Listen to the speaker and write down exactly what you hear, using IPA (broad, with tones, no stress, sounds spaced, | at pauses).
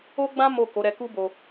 o˦ ɡ͡b ã˦ m o˦˨ k o˨˦ ɾ ɛ˧ k u˦ b o˧